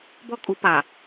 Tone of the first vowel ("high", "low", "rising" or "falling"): high